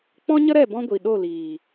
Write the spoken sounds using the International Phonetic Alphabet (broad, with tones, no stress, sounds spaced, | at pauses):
k͡p ɔ̃˦ ɲ ə˦ ɾ ɛ˦˨ b ɔ̃˦ ɡʷ i˨ ɗ o˦˨ l iː˨